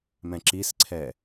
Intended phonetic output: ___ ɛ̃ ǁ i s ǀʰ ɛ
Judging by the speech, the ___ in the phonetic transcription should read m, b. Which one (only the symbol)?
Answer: m